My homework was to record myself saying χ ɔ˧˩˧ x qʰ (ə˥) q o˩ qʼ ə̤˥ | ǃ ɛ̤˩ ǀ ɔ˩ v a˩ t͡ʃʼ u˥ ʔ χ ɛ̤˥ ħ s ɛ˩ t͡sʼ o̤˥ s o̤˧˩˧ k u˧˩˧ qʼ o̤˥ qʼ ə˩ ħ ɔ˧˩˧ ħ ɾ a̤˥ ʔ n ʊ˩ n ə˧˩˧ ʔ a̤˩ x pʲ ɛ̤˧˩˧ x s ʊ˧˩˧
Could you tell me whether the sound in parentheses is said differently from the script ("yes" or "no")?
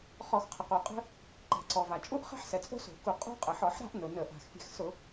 yes